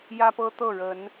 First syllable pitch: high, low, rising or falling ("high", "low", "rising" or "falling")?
high